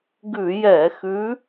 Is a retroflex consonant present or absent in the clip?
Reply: absent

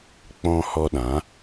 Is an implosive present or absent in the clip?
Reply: present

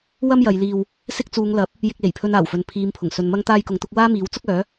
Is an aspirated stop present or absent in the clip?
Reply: present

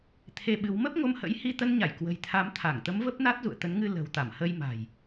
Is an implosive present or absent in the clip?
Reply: present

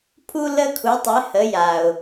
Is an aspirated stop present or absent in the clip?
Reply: present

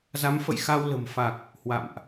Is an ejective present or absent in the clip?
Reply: absent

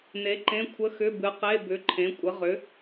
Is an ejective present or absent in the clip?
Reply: present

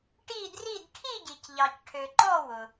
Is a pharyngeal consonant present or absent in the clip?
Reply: absent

